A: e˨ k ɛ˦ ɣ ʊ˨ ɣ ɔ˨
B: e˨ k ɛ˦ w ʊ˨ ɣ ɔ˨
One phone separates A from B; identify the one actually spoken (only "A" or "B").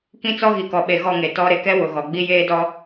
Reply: B